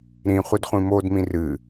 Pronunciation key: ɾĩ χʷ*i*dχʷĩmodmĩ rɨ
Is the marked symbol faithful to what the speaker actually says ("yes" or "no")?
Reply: yes